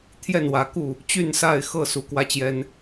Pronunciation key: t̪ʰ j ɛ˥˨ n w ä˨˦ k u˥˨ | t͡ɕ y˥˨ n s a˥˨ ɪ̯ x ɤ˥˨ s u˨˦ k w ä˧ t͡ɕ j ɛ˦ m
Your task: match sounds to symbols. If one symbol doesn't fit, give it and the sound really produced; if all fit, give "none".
m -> n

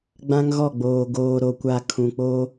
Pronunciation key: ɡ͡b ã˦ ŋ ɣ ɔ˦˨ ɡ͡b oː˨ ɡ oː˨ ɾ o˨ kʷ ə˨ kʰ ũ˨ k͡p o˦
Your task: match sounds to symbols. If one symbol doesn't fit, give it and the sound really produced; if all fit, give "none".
ə˨ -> a˨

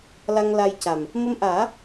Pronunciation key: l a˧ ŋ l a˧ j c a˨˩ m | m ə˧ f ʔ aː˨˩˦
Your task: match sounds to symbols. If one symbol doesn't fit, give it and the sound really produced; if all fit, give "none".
f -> m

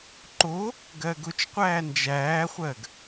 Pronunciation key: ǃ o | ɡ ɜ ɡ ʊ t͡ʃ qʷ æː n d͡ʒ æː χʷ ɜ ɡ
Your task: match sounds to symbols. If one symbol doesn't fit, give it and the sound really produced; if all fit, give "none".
none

